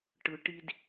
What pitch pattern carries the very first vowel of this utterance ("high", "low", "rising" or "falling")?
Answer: low